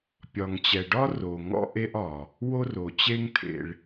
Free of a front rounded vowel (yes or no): yes